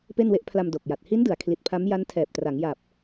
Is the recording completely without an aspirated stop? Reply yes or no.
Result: no